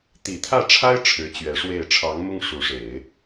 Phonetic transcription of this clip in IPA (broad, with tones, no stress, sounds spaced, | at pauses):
t̪ i˨˩ t̪ʰ ä˥˩ ʈ͡ʂʰ a˥ ɪ̯ ʈ͡ʂʰ ɻ̩˧˥ t͡ɕ ɥ ɛ˧˥ ʂ w e˥˩ ɪ̯ ʈ͡ʂʰ ɑ˧˥ ŋ m ʊ˥ ŋ ʂ u˧˥ ʂ e˨˩˦ ɪ̯